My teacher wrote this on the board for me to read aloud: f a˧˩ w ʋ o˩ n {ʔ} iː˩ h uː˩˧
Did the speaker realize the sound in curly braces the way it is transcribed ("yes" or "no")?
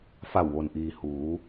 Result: yes